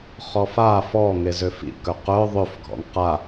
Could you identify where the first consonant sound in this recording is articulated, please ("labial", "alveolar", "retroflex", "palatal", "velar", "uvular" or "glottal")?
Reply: uvular